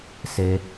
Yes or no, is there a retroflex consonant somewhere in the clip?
no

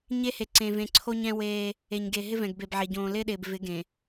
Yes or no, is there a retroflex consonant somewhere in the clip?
no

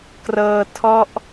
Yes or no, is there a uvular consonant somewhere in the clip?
no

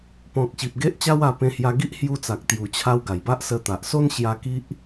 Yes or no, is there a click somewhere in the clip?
no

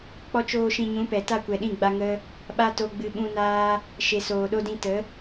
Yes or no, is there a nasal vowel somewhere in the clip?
yes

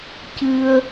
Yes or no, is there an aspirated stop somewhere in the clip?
no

